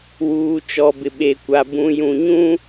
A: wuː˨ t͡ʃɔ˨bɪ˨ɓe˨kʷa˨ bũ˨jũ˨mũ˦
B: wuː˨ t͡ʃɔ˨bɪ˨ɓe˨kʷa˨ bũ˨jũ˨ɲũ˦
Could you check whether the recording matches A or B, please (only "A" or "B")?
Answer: B